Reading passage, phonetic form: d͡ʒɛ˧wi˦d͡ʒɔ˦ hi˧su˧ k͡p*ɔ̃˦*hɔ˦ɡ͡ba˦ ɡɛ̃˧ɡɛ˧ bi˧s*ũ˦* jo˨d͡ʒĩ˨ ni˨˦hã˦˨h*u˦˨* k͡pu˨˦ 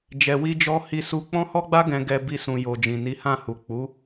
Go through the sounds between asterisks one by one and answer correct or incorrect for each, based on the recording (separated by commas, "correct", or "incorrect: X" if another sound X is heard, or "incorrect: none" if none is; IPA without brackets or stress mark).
correct, incorrect: ũ˨, incorrect: u˨